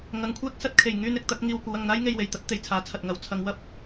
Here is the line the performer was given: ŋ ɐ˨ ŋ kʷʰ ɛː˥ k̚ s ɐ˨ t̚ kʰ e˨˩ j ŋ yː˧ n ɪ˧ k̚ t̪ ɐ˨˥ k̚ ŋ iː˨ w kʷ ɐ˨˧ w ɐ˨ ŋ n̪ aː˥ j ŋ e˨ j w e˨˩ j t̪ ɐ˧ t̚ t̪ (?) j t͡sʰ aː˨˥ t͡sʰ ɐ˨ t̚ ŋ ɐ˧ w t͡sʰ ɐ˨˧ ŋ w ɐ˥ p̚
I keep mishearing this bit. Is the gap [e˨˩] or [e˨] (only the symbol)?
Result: e˨